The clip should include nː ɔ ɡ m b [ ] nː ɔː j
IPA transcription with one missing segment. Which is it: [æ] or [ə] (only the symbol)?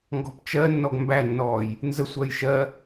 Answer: æ